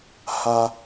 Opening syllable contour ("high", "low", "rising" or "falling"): high